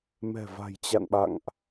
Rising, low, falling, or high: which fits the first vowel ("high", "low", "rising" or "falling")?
low